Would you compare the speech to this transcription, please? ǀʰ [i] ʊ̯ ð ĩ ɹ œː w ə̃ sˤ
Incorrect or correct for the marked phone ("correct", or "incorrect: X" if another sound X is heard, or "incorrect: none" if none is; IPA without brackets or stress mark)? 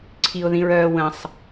correct